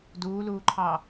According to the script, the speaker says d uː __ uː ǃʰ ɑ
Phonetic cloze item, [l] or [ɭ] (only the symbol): l